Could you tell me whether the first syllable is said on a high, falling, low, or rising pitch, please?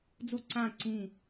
falling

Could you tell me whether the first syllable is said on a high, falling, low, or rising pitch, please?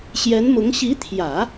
rising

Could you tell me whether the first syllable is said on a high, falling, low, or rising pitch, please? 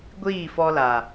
falling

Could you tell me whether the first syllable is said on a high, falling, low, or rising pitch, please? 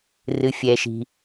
low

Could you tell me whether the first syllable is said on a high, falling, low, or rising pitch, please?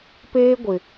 high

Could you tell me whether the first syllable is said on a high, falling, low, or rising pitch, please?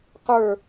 falling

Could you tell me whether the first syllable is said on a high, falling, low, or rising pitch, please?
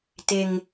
high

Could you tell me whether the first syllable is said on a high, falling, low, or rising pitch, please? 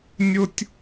high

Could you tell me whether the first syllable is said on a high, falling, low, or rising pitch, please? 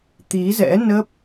rising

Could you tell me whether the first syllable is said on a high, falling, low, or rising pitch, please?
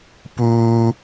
high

